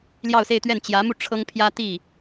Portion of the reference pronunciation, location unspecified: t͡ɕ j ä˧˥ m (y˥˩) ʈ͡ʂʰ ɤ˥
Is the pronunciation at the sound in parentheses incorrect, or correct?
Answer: incorrect